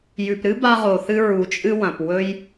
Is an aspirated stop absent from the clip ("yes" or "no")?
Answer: yes